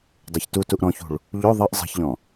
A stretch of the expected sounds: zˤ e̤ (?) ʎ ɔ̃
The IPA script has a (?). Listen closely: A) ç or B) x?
A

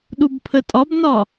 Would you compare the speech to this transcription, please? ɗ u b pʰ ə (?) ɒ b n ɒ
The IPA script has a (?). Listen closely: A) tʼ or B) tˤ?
A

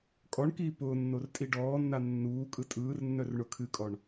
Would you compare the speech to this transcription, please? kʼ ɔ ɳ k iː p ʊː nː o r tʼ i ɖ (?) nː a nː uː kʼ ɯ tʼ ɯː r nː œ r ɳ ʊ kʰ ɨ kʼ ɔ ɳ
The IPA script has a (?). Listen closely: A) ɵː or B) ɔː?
B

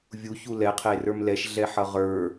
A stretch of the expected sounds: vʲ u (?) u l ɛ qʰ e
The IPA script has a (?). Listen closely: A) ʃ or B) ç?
B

